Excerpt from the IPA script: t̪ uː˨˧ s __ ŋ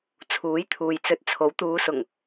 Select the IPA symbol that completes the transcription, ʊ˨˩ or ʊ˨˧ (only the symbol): ʊ˨˩